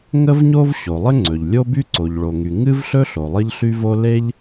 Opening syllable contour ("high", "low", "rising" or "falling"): high